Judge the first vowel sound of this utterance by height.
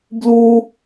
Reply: high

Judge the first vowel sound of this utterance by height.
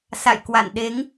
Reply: low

